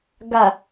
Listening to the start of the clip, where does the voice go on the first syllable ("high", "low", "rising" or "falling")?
low